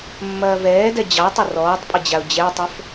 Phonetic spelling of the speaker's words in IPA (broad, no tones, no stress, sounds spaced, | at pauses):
mː ɐː v ɛː d ɛ d͡ʑ ɑ tˤ ɐ r ɔː tˤ pʼ ə d͡ʑ a ʊ̯ d͡ʑ ɛ tˤ ə f